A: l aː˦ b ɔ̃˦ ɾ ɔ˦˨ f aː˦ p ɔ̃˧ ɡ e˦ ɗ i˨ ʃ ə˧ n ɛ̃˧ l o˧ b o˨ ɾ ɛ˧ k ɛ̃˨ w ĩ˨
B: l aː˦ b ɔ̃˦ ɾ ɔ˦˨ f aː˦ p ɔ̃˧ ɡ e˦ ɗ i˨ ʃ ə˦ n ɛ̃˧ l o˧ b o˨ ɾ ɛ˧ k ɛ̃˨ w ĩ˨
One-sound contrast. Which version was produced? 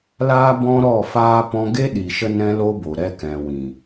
A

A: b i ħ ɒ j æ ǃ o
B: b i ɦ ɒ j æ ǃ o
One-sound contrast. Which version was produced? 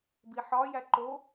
A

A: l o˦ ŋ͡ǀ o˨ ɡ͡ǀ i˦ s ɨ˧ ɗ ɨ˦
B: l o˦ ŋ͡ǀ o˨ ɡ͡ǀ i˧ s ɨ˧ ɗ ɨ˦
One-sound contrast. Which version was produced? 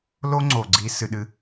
B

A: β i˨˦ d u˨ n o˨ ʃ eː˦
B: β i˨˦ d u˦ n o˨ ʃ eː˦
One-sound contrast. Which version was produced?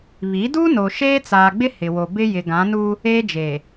B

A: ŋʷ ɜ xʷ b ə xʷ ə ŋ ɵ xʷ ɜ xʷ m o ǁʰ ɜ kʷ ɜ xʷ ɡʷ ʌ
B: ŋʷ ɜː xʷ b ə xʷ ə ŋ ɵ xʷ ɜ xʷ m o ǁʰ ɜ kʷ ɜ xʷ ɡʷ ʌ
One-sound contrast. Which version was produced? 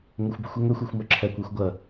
A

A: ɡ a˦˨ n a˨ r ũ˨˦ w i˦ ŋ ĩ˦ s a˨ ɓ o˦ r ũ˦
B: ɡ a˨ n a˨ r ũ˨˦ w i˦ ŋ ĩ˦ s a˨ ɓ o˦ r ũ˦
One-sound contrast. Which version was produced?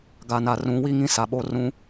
B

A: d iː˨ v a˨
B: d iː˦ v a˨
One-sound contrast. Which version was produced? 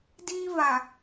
B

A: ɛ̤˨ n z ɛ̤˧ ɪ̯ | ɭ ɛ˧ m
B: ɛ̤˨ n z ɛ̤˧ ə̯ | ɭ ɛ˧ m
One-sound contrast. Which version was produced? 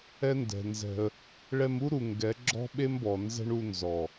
B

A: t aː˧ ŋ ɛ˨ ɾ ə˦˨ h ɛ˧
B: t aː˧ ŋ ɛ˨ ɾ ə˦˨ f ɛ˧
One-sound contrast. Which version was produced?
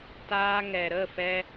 B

